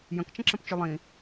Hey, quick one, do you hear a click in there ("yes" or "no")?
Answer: yes